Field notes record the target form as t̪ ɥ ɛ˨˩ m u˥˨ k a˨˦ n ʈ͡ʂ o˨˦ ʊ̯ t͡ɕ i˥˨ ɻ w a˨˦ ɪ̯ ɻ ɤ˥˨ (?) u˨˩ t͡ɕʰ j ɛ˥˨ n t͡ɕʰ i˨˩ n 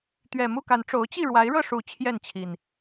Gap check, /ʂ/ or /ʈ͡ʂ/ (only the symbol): ʂ